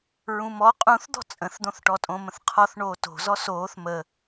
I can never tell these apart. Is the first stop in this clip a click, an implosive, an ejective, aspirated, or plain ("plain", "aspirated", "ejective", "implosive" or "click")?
ejective